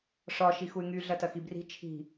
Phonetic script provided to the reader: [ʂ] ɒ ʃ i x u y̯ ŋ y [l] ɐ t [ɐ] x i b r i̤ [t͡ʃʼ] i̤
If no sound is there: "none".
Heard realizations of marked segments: ʂ, ɮ, ɐ, t͡ʃʰ

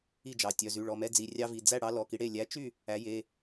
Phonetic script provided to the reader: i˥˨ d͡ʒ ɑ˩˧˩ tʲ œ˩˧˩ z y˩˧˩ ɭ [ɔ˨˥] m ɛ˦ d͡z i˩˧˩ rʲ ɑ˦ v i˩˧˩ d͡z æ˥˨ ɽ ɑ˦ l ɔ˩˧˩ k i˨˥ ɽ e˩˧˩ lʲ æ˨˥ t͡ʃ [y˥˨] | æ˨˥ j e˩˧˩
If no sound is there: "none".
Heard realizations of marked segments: ɔ˩˧˩, y˥˨

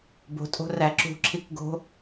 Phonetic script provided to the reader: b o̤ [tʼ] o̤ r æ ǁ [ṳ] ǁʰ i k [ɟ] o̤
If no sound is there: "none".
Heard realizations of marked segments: tʼ, ṳ, ɡ

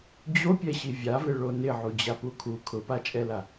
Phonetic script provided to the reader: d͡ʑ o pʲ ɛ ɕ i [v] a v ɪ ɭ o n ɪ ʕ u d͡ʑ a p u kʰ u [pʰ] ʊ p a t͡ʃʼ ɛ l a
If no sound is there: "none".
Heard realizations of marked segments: vʲ, kʰ

